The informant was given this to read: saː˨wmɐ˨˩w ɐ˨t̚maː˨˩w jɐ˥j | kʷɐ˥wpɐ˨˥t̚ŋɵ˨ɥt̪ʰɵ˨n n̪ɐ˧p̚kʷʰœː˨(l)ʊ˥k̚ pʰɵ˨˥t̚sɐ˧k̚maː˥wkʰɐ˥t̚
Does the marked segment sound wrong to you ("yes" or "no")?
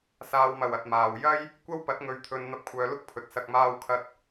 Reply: no